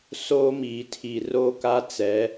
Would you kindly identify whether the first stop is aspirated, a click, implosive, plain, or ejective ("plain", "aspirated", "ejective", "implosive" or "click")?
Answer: aspirated